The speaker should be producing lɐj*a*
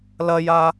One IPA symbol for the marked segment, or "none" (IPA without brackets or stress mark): a